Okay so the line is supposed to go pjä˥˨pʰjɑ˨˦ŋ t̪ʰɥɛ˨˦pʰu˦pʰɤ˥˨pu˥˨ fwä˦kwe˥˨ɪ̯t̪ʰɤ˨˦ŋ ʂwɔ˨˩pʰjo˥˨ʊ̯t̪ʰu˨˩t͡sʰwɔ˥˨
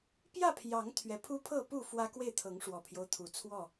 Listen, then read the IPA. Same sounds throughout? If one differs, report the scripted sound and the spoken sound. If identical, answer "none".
o˥˨ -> o˦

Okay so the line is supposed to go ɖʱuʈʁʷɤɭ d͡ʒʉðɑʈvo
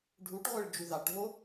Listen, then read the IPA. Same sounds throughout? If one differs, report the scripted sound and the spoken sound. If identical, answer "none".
none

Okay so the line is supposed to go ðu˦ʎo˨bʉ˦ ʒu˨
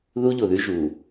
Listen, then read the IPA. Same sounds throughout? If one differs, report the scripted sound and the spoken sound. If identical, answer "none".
b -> ð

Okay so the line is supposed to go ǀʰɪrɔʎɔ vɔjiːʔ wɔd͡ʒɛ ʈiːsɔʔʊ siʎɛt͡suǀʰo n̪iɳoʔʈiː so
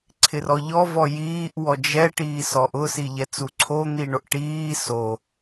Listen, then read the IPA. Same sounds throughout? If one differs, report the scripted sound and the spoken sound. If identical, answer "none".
none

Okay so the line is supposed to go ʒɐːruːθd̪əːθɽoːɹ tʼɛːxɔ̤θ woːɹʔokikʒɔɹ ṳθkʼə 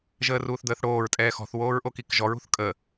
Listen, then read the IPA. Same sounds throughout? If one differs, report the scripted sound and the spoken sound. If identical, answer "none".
ɐː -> əː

